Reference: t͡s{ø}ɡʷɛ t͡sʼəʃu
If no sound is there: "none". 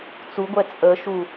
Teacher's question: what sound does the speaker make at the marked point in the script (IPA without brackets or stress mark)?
u